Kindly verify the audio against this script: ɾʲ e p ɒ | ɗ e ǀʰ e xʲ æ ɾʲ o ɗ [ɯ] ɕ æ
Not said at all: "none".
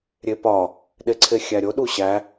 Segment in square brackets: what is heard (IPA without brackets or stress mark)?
u